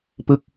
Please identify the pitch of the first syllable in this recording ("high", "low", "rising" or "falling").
falling